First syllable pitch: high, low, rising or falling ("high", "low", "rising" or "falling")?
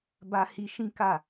high